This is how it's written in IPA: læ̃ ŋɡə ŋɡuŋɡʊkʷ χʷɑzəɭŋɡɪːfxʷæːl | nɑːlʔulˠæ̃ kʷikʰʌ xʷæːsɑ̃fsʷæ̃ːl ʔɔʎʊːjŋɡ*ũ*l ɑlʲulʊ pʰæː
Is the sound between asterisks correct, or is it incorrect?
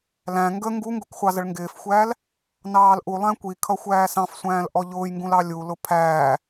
correct